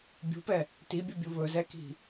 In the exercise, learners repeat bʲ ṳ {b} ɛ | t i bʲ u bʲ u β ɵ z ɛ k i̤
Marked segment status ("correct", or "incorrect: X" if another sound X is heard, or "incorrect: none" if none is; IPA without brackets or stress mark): incorrect: p